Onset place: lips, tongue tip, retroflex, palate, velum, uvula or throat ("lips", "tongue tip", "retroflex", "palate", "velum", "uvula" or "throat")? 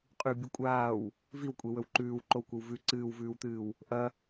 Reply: uvula